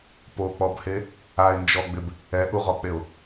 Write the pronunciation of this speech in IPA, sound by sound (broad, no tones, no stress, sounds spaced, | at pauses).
p o k͡p ɔ b h e | a ɪ̯ n d͡ʒ ɔ ɡ͡b ɪ b | ɛ ʔ u ʁ ɔ k͡p e ʊ̯